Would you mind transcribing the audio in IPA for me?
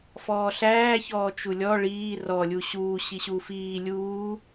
f ɔː ɬ æː ç ɔː t͡ʃ u lʲ ɔ ɭ iː r ɔ lʲ u ɕ uː ɕ i ɕ uː f iː lʲ uː

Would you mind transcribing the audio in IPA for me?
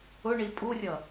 ʊ ɳ i pʼ u rʲ ʌ

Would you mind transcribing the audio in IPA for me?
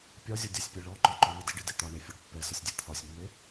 pʲ ɒ zʲ ɒ dʲ a sʲ pʲ ɛ ɭ ɔ ǃ ɒ ǃ ɔ n ə d i ɖ i d e t̪ ɒ ɳ e fʲ ɒ ɖ pː ɛ s ə sʲ dʲ ɛ t̪ʰ ɒ sʲ mː e

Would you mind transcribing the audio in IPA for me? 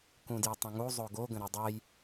k ũ d j ə tˤ ə̃ ŋ u zˤ o ɡ o ɡ ə̃ ɾ o dˤ ɜ j

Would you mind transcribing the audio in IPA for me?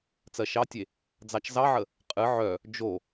t͡s ɜ ʃ ɑ tʲ e | d͡z ɑ t͡ʃ z ɑ ʕ ə | qʼ ɨ ʕ œ | d͡ʒ o

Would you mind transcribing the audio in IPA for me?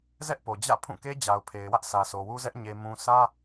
z ɛ˦ ʔ p o˨ d͡ʑ ä̰˦˨ pʰ ũ˦˨ k e˦ d͡ʑ a˨ ʊ̯ pʰ e˨ ɪ̯ w ä˦ ʔ s ä˨ sʰ o˨ w u˦ z ɛ˦ ʔ ɲ e˨ m ũ˨ s ä˦

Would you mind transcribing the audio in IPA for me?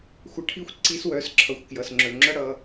xʷ ʌ˧ ʈʰ i˦ xʷ ǀ i˧ s w œ˨˦ s ǁʰ ʌ˨ xʷ k j ʌ˨ s ŋ͡ǁ œ˨ ŋ͡ǁ ʌ˧ ɽ ʌ˧

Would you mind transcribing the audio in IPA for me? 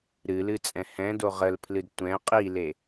ɾ ɨ l ɨ t͡sʼ ɛ̃ h ɛ̃ d o ʁ ə l pʰ l ɨ d tʷ ɛ̃ qʼ i l e

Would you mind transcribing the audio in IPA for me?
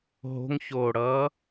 ɦ o̤ ŋ ç oː ɽ ʌː

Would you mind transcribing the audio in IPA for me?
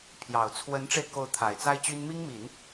pʰ j ɑ˨˩ ʊ̯ t͡sʰ w ə˧˥ n ʈ͡ʂ e˧ ɪ̯ k o˧˥ ʊ̯ t̪ʰ a˨˩ ɪ̯ t͡s a˥ ɪ̯ t͡ɕ y˥ n m i˥ ŋ m i˨˩˦ n

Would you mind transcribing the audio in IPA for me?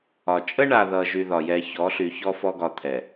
ɒ˨ t͡ʃʼ ə˦ ɳ a˨ ð ʌ˨ ʒ y˦ ð ɒ˨ j ɛ˦ ç ɔ˨˦ ɬ y˨ ç ɔ˦ f ɔ˦ ɡ ɒ˨ t̪ʰ ɛ˨

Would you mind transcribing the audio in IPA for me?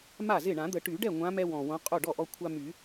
m a˥˩ z ɪ˥˩ ɳ ã˨˩˦ d̪ ə˨˩˦ ʈ y˨˩˦ ɖ ɛ˥˩ ŋʷ ã˨˦ m ɛ˦ w ɔ̃˨˩ w õ˨˦ qʼ o˥˩ ɖ ɔ˥˩ ʔ ɔ˦ kʷʰ a˦ m y˨˩˦

